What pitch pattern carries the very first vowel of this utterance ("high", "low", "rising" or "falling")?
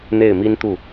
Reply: falling